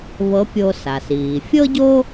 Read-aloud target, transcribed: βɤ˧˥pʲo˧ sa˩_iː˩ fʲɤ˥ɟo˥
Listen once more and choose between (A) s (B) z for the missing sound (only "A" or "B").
A